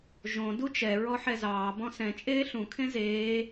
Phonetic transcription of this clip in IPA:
ʒ õ d u t͡ʃ ɛ ɹ ɔ ħ ɛ z ɑː b ɔ̃ s ɛ̃ t͡ʃʼ eː ɬ ũ kʰ ẽ z eː

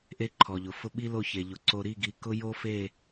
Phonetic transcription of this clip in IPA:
ʔ e˦ ǃʰ ɔ˨ ʎ ʊ˨ f ʊ˦ ɓ i˦ l o˦˨ ç e˨ ʎ ʊ˨ ǀ o˨ ɾ i˦˨ ɡ i˨ k ʊ˦ j o˦ f e˦˨

